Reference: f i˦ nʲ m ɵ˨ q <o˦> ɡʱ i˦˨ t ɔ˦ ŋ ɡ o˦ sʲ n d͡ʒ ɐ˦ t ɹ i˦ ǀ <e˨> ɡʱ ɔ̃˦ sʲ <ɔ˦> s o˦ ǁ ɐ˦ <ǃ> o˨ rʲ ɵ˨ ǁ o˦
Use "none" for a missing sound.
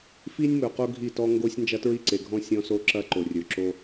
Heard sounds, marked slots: o˦, e˨, ɔ̃˦, ǃ

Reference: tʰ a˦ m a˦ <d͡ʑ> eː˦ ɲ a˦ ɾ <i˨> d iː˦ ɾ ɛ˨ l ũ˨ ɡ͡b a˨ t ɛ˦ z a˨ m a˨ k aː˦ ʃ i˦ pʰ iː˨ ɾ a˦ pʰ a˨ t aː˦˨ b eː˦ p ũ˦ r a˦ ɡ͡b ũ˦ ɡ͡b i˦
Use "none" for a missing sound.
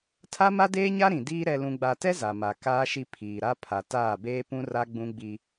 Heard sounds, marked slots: d, ĩ˨

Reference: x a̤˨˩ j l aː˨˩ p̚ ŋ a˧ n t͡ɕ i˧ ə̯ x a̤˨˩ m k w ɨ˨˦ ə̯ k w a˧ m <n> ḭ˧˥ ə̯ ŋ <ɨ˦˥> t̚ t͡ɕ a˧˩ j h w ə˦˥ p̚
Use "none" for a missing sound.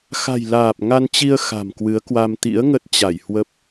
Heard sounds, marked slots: t̪, ə˦˥

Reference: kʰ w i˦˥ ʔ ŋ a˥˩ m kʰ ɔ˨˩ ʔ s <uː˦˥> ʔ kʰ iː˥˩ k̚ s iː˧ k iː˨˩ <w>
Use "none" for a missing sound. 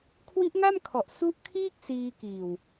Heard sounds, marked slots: u˦˥, w

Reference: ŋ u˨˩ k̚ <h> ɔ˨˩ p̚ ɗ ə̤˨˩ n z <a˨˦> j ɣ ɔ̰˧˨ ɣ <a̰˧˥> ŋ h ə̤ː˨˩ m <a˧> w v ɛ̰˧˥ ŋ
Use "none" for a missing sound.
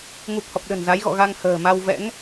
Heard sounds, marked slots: h, a˨˦, a˧, a˧

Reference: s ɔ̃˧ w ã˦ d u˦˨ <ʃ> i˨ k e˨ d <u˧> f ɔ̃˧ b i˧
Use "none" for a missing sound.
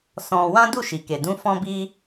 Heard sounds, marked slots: ʃ, ũ˧

